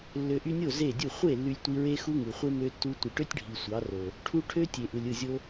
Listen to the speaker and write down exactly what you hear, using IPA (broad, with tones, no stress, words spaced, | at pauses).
lːø˨ʔy˧nʲo˦˨ ze˦˨dʲu˦˨ χʷe˦˨ lːy˧lʲtʷi˧ɹe˦ xu˦ŋɯ˨χʷe˦ mø˦tːu˦ tʷi˨ʈø˦tʲɖʱi˨ sʷɑ˨˦ro˨ | ʈʰu˧ ʈʰø˦tʲe˨ʔɯ˨lʲ ɯ˦˨zʲo˦